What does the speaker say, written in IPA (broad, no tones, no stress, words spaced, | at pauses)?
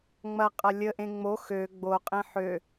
ŋ͡mɐqʼɐ lʲəʔẽ ŋ͡mo xø ɡ͡boqʼẽ ħø